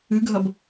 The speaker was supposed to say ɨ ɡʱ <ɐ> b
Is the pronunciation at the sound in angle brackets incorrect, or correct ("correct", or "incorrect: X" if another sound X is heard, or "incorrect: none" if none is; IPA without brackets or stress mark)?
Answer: correct